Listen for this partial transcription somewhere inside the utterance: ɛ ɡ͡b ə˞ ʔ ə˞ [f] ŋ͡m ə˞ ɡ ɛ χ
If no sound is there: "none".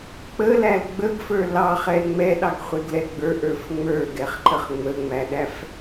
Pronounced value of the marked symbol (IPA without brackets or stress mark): f